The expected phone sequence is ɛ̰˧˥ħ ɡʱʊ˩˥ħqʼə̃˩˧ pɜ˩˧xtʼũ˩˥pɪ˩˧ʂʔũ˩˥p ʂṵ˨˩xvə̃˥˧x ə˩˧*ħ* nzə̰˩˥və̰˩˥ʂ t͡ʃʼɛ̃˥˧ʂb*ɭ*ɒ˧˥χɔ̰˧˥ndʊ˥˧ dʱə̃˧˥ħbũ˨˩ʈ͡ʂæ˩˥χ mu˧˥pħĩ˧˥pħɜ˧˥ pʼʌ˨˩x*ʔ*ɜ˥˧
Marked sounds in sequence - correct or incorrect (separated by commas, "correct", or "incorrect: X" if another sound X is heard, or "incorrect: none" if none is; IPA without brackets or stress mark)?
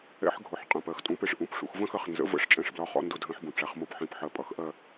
incorrect: χ, incorrect: l, correct